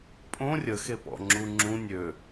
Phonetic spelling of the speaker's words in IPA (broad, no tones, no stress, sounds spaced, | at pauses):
pʼ õ rʲ ə x e p ɔ̰ ŋ͡ǁ u ŋ͡ǁ ũ nʲ ø